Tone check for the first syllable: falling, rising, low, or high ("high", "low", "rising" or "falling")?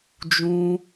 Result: high